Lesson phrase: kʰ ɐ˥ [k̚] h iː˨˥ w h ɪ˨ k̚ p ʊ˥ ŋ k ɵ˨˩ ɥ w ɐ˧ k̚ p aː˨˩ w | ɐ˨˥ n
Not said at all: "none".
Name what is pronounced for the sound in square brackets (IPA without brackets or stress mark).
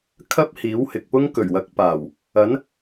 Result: p̚